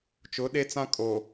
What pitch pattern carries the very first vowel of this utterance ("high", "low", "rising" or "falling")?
rising